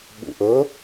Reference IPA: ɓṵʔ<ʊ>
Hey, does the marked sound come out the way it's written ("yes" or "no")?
no